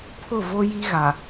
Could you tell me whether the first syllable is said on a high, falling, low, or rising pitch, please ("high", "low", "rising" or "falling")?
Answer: falling